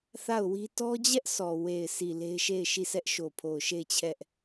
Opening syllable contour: falling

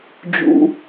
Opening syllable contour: high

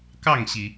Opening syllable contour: falling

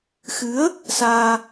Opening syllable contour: rising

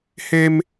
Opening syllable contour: high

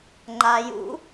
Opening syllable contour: low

